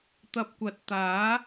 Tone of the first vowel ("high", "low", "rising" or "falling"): low